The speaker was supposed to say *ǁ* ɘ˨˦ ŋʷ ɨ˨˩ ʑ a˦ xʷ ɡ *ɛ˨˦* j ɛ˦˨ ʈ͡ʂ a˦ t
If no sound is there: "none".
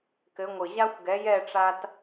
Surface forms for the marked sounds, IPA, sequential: k, ɛ˨˦

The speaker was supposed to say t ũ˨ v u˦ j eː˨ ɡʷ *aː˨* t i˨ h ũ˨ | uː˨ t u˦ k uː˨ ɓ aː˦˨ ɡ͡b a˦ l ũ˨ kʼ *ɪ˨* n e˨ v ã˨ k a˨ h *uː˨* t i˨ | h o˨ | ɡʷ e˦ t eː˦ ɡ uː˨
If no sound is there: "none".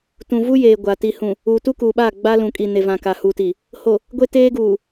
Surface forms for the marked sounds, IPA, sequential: a˨, i˨, uː˨

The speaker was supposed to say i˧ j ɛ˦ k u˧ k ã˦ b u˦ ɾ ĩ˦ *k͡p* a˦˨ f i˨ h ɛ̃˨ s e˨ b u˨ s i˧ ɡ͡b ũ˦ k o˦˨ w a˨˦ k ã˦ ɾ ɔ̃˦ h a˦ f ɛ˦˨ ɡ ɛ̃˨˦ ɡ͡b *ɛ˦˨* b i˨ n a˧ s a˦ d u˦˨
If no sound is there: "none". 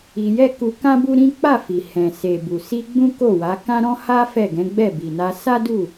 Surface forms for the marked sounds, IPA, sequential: k͡p, ɛ˦˨

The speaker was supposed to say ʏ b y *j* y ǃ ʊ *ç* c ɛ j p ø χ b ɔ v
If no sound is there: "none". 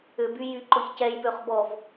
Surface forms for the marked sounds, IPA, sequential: j, ç

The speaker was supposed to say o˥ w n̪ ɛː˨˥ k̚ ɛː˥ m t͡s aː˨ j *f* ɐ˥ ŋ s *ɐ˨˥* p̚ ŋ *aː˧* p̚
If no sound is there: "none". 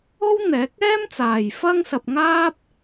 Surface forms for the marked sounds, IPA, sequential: f, ɐ˧, aː˥

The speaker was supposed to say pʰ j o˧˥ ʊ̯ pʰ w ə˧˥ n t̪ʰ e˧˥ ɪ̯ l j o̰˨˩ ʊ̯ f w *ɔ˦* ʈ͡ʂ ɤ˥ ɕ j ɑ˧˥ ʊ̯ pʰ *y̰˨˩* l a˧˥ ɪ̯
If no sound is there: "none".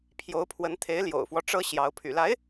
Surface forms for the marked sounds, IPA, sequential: ɔ˦, y̰˨˩

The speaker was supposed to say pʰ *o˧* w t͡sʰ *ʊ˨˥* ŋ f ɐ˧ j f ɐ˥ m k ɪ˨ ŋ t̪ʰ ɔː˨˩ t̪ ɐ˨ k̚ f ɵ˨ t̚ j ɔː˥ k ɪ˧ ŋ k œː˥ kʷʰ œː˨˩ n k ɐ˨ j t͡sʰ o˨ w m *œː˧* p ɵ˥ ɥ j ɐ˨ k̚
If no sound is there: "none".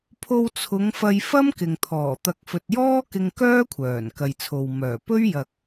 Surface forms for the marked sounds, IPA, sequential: o˧, ʊ˨˧, œː˨˩

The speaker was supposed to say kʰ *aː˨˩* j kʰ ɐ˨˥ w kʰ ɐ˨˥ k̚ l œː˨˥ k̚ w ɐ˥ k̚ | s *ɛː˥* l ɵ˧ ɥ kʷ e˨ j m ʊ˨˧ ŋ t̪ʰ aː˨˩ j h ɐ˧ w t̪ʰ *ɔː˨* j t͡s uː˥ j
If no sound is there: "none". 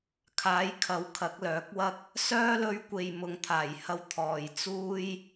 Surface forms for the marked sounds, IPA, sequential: aː˨˥, œː˥, ɔː˨

